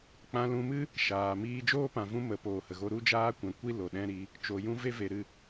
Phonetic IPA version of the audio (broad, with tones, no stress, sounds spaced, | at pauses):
k͡p ã˧ l ũ˧ m ɨ˦ | ʃ aː˨ m iː˦ d͡ʒ oː˦ p ã˨ v ũ˧ m ə˨˦ p oː˨ h ə˨ ɣ o˦ ɾ u˦ d͡ʒ aː˦ kʷ ɛ̃˨ kʷ i˦ l o˨ ɗ ɛ̃˦ ɾ i˧ | t͡ʃ o˨ j ũ˦ v e˦ v e˨ ɾ ɨ˦˨